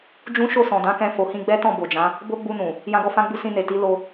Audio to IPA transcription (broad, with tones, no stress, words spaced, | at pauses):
d͡ʒũ˦ ʃo˦˨sɔ̃˨dã˨˦kɛ̃˧ fo˨hĩ˧ɡ͡bɛ˦tɔ̃˦˨ bo˨d͡ʒã˨˦ | bo˦ɡ͡bu˧nũ˨ | jã˦ɡɔ˦ fã˧ɡ͡bu˧ sĩ˧ ne˨ ti˨˦ lo˧